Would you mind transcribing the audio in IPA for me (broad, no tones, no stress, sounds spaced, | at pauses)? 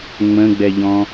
ŋ͡m ə̃ ɡ͡b ɛ ʎ ɔ̃